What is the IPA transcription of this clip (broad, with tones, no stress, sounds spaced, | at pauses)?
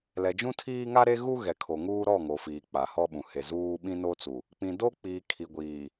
l ɛ˨ d͡ʒ ũ˦ tʰ iː˦ ŋ a˦ ɾ e˦ ɣ u˦ ɣ ɛ˨ kʰ o˨ ŋ uː˦ ɾ ɔ˦˨ ŋ o˨ f iː˨ k͡p a˨ h ɔ˦ ɓ ũ˨ h e˨ z uː˦ ɓ ĩ˦ n o˦ t͡s u˨ | k͡p ĩ˨ d o˦ k͡p iː˨ kʰ i˨ ɡʷ iː˨